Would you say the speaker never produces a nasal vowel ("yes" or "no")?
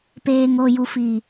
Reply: yes